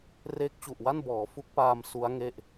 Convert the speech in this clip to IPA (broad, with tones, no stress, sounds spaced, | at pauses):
r eː˦˥ k̚ t͡ɕ u˨˩ ʔ w a˥˩ n b ɔː˩˦ f u˦˥ k̚ p aː˧ m s u˦˥ a̯ ŋ e˥˩ ʔ